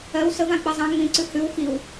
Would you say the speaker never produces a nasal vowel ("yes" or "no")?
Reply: no